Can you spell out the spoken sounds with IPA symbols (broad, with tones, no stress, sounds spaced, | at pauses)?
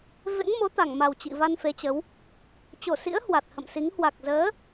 v ḛ˧˥ ŋ m o˨˦ t̪ a˧˩ ŋ m a˨˩ w t͡ɕ ḭ˧˨ v a˧ n f e˨˦ t͡ɕ ə˨˦ w | t͡ɕ o˧˩ s ḭ˧˥ ə̯ h w a˨˩ t̚ h ə̰˧˨ m s i˨˦ ŋ h w a˨˩ k̚ z əː˨˦